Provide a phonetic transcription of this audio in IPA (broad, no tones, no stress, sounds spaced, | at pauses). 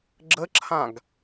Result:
ɡ͡ǁ ə ǁʰ ã ɡ